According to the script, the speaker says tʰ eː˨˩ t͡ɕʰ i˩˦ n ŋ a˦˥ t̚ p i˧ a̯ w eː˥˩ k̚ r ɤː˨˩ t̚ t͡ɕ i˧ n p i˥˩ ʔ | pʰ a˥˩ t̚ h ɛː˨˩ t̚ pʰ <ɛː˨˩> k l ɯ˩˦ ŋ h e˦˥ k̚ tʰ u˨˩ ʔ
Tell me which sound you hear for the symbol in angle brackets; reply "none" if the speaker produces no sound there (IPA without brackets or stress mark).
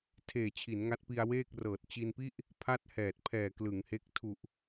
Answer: ɛː˨˩